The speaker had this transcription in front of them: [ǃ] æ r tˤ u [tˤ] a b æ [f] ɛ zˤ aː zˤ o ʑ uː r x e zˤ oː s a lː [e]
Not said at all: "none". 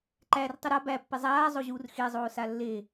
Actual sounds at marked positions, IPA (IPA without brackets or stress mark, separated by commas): ǃ, ɾ, pː, e